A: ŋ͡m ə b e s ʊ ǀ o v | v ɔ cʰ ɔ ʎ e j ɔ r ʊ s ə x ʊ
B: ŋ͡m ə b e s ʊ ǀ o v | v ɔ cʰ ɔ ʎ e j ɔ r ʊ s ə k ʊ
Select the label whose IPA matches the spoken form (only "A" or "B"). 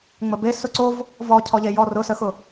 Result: A